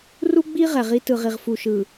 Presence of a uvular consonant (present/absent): present